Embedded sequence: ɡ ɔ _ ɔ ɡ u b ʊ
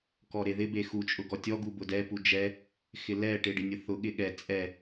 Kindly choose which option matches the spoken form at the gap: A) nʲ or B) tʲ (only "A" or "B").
B